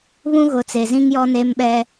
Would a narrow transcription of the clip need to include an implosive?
yes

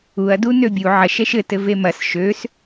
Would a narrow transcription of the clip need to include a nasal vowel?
no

